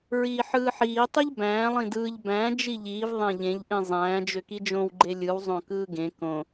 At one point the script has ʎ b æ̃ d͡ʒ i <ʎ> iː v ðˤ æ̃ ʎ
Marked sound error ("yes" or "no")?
no